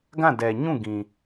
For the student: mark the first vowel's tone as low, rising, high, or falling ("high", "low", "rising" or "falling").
falling